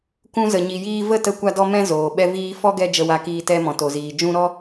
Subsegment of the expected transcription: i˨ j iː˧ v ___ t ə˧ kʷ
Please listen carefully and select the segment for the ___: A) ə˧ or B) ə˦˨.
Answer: B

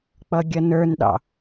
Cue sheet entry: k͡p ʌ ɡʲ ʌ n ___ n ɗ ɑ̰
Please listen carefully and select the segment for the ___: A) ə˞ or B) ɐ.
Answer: A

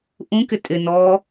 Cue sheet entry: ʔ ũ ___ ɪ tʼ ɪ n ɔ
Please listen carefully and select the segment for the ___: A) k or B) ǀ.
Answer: A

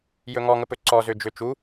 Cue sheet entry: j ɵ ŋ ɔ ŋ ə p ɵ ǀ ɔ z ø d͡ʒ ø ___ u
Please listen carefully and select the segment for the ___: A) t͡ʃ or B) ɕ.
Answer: A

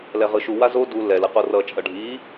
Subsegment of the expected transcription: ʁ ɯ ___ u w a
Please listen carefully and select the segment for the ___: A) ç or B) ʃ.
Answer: B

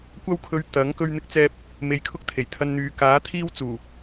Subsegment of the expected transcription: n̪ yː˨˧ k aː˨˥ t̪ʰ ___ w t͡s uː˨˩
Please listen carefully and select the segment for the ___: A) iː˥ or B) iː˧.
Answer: A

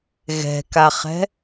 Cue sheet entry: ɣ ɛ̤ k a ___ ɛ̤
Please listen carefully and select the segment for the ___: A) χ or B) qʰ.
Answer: A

